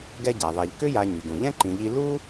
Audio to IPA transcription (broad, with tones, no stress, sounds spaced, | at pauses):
ɡ ɛ˦ ɟ a˩ ðˤ ɛ˨ ʎ k ʏ˦ j a˨ ɲ y˩ ɡ ũ˩ ʎ ɛ̃˥ ǃ ĩ˨ ʎ i˦ l u˥